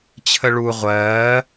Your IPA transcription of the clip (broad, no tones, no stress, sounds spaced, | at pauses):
t͡ɕʰ ə ɭ u ʁʷ ɜː